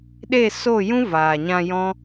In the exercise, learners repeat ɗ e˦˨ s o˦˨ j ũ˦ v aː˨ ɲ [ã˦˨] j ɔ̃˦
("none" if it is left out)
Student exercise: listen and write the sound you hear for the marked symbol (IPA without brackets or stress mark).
ã˧